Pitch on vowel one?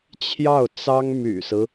falling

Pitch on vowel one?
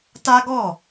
high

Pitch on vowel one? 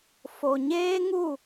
low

